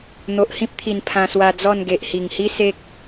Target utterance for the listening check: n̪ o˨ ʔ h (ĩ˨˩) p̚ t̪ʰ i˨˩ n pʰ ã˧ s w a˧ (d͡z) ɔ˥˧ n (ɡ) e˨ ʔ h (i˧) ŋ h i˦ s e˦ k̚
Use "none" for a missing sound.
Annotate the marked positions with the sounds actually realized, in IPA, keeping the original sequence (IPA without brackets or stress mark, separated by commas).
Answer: ĩ˦, d͡z, ɡ, i˨˩